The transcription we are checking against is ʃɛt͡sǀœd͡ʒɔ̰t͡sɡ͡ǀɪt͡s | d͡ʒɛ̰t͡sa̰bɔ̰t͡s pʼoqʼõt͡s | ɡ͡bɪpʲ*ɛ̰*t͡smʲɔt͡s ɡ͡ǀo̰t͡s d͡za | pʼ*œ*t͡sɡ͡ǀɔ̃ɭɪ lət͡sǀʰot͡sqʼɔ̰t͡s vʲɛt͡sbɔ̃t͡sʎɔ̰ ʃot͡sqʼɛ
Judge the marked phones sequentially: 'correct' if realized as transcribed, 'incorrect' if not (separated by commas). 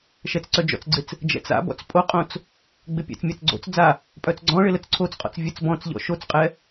correct, correct